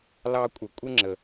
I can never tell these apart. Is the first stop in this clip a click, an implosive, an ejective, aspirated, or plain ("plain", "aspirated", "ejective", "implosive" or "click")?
ejective